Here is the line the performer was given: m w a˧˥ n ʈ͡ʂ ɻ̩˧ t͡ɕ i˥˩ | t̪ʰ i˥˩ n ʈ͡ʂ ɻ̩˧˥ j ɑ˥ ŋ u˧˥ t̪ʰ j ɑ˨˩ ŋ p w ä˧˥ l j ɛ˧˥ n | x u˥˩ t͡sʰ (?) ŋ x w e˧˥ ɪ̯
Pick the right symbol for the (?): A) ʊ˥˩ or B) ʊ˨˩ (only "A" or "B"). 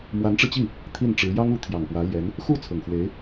B